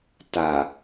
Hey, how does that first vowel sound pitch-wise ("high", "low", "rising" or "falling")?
low